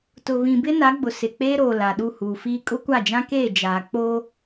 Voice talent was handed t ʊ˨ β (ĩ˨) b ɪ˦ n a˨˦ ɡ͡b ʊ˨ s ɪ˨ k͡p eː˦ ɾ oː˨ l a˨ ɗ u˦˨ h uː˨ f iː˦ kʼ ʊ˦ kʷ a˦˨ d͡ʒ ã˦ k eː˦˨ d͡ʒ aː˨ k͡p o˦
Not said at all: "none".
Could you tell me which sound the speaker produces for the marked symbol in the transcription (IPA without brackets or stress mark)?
ĩ˨